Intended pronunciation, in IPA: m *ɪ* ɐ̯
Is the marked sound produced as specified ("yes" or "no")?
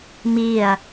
no